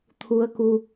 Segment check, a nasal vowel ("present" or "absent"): absent